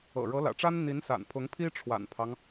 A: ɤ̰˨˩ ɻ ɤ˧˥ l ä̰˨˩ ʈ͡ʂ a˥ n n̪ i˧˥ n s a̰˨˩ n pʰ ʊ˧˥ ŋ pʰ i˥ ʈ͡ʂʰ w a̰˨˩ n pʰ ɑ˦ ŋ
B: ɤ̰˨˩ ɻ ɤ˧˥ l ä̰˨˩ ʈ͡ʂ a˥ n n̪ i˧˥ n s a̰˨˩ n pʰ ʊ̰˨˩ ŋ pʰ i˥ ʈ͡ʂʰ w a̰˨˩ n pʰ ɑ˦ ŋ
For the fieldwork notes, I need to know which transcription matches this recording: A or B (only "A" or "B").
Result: A